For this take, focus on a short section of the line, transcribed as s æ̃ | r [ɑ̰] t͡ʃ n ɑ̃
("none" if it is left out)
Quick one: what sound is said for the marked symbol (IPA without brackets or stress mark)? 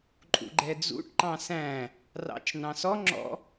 ɑ̰